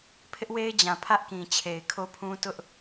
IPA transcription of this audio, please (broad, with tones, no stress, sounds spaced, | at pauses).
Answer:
pʰ ɪ˦ ʔ w e˦ ɪ̯ d͡ʑ ã˨ pʰ ä˦ ʔ k ĩ˨ t͡ɕʰ e˨ ɪ̯ kʰ o˦ pʰ ũ˦ t ʊ˦ ʔ